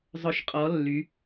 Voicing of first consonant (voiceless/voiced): voiced